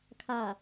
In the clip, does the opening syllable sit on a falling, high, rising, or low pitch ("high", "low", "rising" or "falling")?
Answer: low